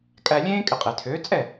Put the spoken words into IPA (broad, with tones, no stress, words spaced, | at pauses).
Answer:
kʼæ˧lʲẽː˥ kʼɪ˩˥qʼɪː˩tʰøː˩˥ t͡sʼɛ˥˩